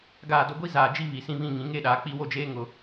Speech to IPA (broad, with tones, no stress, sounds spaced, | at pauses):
ɡ aː˨ d o˨ ɡʷ i˦ z aː˨ d͡ʒ i˦ β i˨ s ĩ˦ β ĩ˦˨ ŋ ĩ˨˦ ŋ e˦˨ ɗ aː˨ k͡p i˦˨ w o˦ d͡ʒ eː˦ ŋ ʊ˨